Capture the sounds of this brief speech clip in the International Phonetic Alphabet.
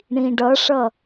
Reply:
ɳ ĩ ɖ ʌ ʂ ʌ

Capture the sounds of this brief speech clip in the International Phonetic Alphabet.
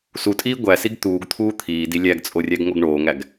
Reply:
s u tʼ iː ɡʷ æ s i ɡ t̪ uː ɡ t̪ʰ uː t̪ʰ iː d i lʲ æ ɡ t͡sʼ o rʲ æ ɡ ŋ o ɡ ɳ oː ŋ æ ɡ

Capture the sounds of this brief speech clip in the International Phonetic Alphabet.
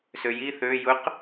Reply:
s ø j i θ ø j ʊ q

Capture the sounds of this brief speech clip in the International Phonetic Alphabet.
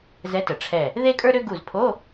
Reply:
z ɛ˨˥ t ə˩ ʈ͡ʂʰ ɛ˧˩ | ð e˥ kʼ ə˞˥ ɾ ø˥ ɡ u˧˩ z pʰ o˧˥˧

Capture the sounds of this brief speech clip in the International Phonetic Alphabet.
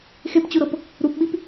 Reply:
x e p t͡ɕ u ɾ ɤ p | ɾ u p ɓ i p

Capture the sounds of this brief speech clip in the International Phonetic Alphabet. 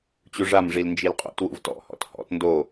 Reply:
t͡ɕ u ʐ a m ʐ i l n d͡ʒ i l qʼ ṵ t w ṵ v t ɔ̰ h ɔ̰ t h ɔ̰ t n d o

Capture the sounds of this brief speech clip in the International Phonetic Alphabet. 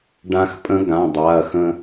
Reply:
ɖ ã˧ x pʼ ə̃˧˥ ɡ ã˩˧˩ dˤ a˩˧˩ ɐ̯ x ə̃˧

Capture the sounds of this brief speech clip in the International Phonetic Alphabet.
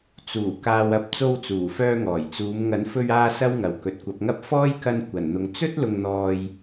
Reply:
t͡s uː˨˩ k aː˨ w ɐ˨ p̚ t͡s o˧ w t͡s uː˨˩ f œː˧ ŋ ɔː˨˩ j t͡s uː˨˧ m ŋ ɐ˨˥ n f ɵ˧ ɥ aː˧ s ɐ˥ w ŋ ɐ˨ w k ɵ˨ t̚ kʷ ɐ˨˥ p̚ ŋ ɐ˥ p̚ f ɔː˥ j k ɐ˧ n kʷ ɐ˨˩ n n̪ ʊ˨ ŋ t͡s ɵ˥ t̚ l ʊ˧ ŋ n̪ ɔː˧ j

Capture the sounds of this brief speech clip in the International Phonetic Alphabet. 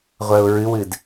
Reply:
ʁʷ ɜ ʊ̯ ɹ ɨ w ɨ d

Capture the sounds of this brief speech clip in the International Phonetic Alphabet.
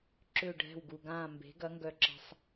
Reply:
ǁ ʏː˦˨ ɖʱ ɛ̤˦˨ w ɡ u˨ ɡ ãː˦˨ m b e̤˨˥ ɡ ɐ˨˥ ŋ ɡ œ˨ ǁ ə̤˨ sˤ

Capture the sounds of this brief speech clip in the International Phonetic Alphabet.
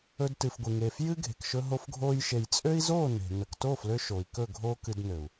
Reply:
ɵ˧ d t ɨ˨ f ɡʷ ɨ˨ ŋ eː˨ f j ɨ˦ ɡʱ e̤˨ k ʃ ɵ˧ ɦ o˧ f ɡʱ oː˧ j ʃ e˨ j t͡sʼ ø˦ i̯ z oː˦˨ n e̤˨ n ə˨ k t oː˦˨ f l ø˧ ʃ o˨ i̯ k ɵ˦˨ ɡʱ oː˦ k ɨ˧ d n ø˨ u̯

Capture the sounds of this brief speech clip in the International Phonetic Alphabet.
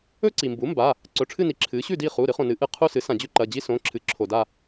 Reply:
ɵ˥ ǀ i˩ m b u˩˥ m b a˩˧˩ | ǀ ɵ˩˧˩ ʈ͡ʂʰ ɨ˦˨ n i˩˥ ǁʰ ɨ˩˥ ɕ ʉ˦˨ d i˦˨ χ u˩˧˩ ɾ ɨ˩˥ χ õ˩ n ɨ˩˥ ʔ ɨ˩˧˩ qʰ u˦˨ s ɨ˩˥ s ã˩ d͡ʑ ʉ˥ ǃ ɐ˩˧˩ d͡ʑ i˥ s õ˩˧˩ ǁʰ ɨ˩˥ ǁʰ o˩ d a˦˨

